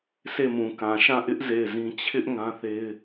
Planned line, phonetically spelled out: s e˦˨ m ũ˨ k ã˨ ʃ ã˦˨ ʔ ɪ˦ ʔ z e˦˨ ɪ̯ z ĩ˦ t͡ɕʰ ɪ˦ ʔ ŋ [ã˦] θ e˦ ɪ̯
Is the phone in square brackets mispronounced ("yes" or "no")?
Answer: no